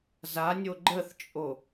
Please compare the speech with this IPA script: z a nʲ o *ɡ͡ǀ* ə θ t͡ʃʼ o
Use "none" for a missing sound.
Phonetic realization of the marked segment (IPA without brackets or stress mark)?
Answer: ɡ͡ǃ